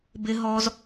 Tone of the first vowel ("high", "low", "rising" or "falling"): high